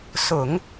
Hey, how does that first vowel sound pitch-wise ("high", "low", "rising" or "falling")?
low